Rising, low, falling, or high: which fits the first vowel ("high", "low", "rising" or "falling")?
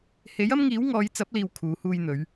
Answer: rising